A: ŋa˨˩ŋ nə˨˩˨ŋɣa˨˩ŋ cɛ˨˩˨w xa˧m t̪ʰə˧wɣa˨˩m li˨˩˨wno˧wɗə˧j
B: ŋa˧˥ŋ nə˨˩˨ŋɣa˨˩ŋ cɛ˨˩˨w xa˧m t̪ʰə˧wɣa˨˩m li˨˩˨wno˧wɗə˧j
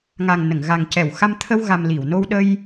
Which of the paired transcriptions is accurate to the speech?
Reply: A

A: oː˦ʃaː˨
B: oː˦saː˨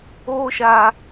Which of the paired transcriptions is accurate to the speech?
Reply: A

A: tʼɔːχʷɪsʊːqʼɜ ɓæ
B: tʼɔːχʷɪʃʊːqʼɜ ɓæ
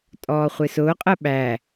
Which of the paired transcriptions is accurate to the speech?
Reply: A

